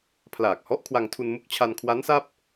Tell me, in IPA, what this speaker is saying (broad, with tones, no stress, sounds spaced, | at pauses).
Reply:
pʰ l aː˨˩ k̚ h ɔ˦˥ ʔ kʰ w a˧ ŋ tʰ u˧ n m u˥˩ k̚ t͡ɕʰ a˧ n kʰ w a˦˥ n s a˥˩ p̚